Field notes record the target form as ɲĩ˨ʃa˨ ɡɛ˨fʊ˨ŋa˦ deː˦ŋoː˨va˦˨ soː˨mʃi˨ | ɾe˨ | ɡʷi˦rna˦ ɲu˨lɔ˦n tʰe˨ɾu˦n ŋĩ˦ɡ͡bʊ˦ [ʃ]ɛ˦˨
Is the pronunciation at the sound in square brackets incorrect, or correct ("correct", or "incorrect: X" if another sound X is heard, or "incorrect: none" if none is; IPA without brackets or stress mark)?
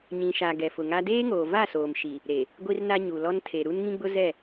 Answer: incorrect: z